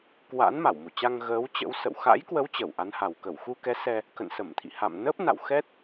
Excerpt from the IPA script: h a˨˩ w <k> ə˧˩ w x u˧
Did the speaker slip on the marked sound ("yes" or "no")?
no